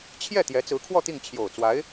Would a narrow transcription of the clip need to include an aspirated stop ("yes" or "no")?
yes